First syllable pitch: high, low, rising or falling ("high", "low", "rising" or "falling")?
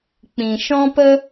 low